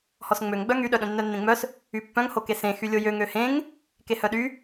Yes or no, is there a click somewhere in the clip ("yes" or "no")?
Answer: no